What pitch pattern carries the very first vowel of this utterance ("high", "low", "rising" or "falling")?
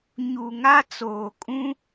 low